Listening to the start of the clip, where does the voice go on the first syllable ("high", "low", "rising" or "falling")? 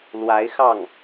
rising